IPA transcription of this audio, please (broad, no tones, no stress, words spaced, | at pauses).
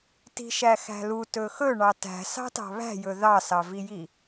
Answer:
ti̤ʃæxæ̤lu tɵxɵ ɳɑtæ̤ sɑ̤tɑ̤βæ̤jɵ ðɑsɑviji